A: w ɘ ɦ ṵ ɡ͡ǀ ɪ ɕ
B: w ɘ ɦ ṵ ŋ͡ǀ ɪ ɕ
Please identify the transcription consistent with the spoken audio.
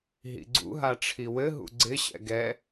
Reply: A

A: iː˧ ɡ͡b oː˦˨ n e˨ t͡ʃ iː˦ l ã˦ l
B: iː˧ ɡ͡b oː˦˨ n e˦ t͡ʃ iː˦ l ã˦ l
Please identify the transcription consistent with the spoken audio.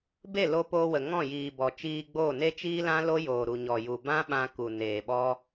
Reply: B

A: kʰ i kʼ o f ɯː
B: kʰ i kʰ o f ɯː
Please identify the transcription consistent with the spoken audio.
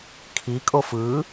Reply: A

